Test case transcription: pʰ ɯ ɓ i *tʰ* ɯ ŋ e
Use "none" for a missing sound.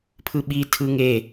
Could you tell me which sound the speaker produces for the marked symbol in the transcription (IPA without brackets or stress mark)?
tʰ